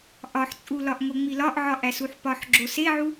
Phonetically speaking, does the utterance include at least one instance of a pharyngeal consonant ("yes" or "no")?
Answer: yes